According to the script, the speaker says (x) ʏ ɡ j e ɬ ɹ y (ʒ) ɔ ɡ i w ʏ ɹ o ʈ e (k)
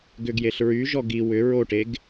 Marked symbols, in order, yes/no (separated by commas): no, yes, no